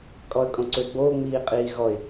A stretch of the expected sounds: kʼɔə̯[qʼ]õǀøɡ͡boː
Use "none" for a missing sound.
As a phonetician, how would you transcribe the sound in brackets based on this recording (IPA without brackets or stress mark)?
kʼ